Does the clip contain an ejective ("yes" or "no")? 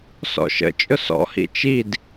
yes